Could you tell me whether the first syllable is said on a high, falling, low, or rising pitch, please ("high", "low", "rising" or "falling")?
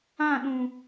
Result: falling